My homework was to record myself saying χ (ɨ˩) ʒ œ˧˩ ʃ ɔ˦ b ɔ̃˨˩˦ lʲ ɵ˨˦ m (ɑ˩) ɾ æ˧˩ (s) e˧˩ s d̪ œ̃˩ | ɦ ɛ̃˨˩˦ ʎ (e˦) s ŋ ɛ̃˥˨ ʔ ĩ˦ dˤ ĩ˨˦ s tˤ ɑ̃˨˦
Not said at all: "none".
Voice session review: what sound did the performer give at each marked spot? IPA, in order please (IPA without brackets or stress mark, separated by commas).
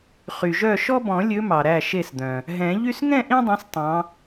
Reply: y˩, ɑ˩, ʃ, y˦